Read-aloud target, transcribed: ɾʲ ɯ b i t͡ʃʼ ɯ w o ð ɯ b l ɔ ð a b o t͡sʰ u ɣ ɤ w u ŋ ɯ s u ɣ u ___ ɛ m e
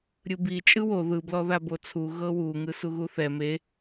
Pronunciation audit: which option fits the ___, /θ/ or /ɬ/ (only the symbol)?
θ